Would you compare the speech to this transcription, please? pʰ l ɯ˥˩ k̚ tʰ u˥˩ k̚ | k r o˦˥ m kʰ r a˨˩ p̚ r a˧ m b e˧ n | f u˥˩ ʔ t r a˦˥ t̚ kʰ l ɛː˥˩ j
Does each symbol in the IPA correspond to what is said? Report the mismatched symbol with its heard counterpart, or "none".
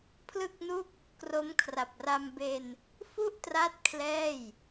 tʰ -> n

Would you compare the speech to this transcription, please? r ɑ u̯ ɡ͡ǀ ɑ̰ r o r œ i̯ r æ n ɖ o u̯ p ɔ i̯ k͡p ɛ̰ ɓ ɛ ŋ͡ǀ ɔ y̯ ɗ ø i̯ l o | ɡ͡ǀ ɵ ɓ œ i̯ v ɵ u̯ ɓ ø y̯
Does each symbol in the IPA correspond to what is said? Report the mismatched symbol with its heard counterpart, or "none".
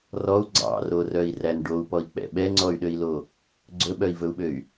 ɑ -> ɔ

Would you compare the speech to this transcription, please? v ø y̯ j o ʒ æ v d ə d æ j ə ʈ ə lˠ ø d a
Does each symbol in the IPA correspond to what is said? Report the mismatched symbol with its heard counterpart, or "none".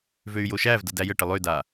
ʒ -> ʃ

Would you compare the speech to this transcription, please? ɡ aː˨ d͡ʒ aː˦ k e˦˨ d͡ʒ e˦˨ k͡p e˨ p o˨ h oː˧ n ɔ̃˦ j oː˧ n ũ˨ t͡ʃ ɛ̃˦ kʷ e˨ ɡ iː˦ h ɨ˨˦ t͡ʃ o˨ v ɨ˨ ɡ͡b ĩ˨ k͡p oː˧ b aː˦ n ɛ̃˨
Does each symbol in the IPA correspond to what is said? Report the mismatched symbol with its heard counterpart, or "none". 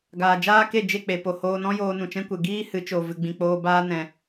none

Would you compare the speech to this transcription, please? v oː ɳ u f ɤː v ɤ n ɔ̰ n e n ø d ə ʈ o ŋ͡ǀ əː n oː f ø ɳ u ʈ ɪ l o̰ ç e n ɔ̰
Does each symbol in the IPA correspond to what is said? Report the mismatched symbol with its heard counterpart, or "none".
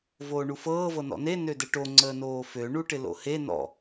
ç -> h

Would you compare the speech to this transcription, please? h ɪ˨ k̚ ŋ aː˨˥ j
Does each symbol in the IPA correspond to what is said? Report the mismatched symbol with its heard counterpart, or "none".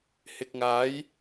none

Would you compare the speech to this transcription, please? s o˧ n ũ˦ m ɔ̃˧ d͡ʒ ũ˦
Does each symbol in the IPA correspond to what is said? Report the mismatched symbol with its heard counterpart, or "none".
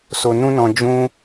m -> n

